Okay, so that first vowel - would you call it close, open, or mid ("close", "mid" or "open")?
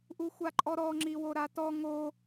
close